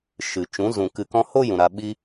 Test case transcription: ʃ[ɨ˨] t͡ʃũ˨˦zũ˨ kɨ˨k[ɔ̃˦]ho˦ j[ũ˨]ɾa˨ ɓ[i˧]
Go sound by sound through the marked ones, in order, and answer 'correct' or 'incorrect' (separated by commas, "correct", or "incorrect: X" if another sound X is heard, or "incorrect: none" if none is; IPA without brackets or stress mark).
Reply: correct, incorrect: ɔ̃˧, correct, correct